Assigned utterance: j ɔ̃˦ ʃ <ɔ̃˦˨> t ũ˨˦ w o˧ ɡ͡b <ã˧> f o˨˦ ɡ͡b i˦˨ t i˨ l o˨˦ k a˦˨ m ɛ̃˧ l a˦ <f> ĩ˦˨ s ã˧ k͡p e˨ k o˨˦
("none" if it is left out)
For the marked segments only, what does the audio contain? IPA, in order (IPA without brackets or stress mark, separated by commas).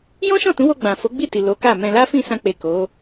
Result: ɔ̃˦˨, ã˨, f